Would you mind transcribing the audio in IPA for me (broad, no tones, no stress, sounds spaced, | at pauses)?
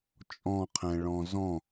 t͡ʃʼ ɔ̃ qʰ ɛ̃ ɭ ɔ̃ z ɔ̃